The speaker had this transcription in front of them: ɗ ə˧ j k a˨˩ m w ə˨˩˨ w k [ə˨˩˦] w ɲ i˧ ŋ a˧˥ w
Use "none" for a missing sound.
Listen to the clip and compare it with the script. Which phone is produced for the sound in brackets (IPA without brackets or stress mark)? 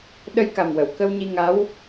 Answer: ə˧